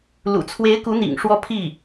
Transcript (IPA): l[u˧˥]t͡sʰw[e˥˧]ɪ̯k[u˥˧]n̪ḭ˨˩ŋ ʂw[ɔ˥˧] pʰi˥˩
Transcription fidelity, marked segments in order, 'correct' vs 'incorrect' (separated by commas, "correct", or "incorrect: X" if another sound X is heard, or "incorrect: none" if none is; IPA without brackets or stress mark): incorrect: ṵ˨˩, incorrect: e˧˥, incorrect: u˧˥, correct